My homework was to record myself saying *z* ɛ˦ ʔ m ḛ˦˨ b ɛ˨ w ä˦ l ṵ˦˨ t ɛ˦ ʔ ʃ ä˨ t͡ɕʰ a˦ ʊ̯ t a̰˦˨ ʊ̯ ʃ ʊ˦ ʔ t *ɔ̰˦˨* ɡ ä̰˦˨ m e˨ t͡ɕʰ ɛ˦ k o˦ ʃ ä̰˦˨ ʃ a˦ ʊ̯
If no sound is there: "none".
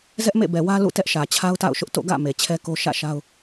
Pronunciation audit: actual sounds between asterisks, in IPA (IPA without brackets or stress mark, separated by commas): z, o̰˦˨